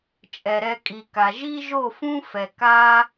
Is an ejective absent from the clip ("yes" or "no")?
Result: no